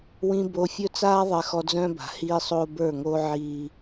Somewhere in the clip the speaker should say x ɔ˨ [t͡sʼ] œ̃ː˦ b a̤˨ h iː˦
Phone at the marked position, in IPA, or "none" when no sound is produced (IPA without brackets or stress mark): d͡z